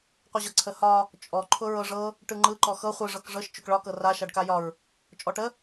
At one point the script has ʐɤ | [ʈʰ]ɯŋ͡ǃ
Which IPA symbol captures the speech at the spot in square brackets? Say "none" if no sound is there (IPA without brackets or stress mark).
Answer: ʈ